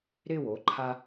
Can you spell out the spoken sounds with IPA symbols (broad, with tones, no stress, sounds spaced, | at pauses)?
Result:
ɾ ɪ˦˨ w o˦ ǃʰ a˦